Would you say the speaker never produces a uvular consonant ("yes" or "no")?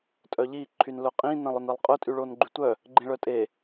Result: no